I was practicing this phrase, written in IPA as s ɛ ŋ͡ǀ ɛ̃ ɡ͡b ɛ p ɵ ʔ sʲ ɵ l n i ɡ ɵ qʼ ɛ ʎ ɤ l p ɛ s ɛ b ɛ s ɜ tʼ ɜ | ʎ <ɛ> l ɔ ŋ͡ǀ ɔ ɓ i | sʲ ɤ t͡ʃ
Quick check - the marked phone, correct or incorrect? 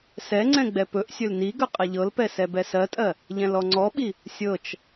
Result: incorrect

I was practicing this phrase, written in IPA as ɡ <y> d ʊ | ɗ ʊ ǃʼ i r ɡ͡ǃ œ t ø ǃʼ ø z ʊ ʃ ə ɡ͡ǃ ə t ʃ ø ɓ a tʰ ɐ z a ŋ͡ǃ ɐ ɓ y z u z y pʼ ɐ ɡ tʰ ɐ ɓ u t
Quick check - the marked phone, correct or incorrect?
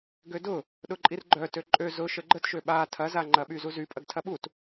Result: incorrect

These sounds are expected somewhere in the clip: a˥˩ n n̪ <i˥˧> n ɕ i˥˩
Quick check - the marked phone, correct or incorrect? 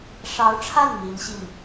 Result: incorrect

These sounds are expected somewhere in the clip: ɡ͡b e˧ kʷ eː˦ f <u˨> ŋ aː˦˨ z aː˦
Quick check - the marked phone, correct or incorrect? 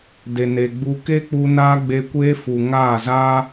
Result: correct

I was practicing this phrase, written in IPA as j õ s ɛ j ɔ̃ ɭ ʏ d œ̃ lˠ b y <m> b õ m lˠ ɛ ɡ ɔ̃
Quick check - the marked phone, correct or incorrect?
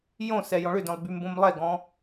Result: correct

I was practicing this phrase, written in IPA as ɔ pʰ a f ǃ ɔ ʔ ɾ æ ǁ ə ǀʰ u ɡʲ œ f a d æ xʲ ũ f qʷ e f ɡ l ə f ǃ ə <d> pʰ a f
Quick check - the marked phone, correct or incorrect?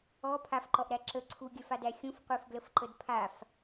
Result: correct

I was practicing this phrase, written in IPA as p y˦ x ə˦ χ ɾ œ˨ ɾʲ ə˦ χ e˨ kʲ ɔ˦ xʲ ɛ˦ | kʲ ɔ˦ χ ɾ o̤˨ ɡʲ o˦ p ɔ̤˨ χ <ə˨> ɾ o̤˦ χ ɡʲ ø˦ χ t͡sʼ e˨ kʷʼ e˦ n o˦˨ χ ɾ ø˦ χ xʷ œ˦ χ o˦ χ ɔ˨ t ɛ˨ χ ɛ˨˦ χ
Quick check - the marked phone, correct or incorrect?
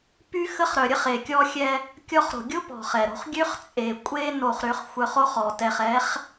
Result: incorrect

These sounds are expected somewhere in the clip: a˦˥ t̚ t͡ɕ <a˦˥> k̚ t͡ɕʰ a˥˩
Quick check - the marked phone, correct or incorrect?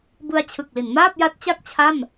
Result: incorrect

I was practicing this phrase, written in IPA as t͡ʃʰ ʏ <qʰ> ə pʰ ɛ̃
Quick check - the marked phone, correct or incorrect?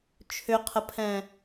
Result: correct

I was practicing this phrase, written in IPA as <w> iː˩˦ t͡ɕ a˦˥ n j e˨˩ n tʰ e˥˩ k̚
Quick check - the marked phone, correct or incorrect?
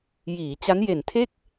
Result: incorrect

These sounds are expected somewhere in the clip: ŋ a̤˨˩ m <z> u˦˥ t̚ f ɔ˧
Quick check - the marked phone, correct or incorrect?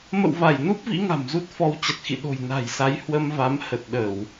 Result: correct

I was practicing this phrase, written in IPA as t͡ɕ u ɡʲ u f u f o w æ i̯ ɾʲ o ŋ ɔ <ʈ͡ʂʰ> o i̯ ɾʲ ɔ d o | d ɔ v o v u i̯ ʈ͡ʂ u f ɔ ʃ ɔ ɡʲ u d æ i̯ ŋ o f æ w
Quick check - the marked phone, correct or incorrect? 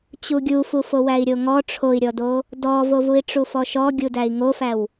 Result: correct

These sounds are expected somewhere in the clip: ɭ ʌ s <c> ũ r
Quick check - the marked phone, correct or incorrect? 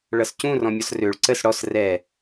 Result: correct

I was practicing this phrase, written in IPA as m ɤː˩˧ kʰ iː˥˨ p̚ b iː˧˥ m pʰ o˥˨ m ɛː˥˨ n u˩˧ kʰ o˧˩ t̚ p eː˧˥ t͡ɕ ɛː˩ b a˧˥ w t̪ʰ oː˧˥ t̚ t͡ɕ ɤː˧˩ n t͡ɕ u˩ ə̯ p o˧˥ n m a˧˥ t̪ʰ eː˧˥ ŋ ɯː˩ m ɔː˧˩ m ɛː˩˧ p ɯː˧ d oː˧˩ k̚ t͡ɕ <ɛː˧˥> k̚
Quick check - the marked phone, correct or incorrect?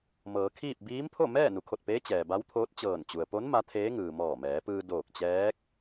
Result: correct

